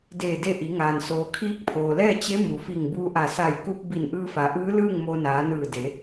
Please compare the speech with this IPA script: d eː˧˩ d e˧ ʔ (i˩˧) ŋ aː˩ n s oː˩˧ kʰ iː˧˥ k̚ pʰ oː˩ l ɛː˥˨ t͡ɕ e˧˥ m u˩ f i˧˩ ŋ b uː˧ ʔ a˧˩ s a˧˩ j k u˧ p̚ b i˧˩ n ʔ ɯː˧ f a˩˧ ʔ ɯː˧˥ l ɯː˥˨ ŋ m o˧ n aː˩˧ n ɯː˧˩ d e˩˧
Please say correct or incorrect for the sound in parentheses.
correct